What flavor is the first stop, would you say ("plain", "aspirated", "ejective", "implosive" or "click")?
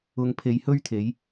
aspirated